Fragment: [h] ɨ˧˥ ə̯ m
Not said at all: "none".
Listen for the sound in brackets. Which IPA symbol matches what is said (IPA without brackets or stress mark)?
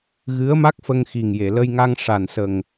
ɣ